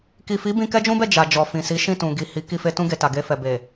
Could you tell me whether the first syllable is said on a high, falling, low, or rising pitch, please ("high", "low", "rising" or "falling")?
low